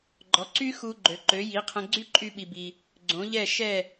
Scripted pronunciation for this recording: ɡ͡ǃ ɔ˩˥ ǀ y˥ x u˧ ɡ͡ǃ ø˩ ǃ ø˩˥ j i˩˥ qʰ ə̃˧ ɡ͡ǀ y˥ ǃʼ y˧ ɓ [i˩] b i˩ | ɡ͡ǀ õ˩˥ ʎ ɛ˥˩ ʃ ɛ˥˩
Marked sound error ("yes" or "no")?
no